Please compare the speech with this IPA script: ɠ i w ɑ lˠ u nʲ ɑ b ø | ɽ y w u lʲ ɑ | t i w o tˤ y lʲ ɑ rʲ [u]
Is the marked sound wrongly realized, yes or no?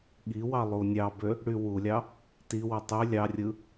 yes